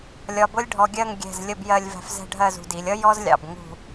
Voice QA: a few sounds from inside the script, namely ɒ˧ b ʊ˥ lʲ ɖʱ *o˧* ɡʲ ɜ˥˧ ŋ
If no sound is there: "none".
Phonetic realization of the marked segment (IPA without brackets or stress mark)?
ɔ˧